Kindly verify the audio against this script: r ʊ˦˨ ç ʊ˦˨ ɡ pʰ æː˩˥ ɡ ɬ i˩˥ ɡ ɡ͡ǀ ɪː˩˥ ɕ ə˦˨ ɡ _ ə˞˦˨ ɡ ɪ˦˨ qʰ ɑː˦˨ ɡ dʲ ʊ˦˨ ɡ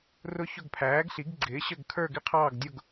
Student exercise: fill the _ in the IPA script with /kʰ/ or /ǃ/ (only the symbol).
kʰ